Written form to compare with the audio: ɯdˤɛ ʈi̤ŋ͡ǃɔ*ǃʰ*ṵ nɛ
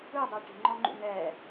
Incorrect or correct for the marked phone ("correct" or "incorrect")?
incorrect